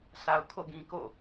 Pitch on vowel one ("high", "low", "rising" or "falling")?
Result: low